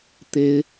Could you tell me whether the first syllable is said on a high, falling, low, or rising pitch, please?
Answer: rising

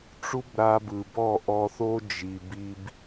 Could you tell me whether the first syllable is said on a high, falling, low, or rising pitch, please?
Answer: high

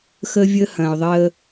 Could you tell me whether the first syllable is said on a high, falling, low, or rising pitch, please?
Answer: high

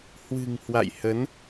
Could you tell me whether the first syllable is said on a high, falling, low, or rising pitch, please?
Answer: low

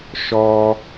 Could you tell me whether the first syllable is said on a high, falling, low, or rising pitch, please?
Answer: high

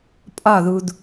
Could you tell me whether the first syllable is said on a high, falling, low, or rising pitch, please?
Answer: falling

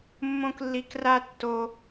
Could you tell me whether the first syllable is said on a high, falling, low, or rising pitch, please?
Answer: high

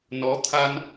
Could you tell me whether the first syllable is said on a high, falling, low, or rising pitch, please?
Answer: rising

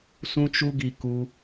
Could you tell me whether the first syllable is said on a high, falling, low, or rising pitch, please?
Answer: high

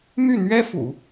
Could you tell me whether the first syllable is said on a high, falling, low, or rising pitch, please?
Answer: falling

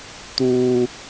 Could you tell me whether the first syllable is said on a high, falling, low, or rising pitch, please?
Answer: low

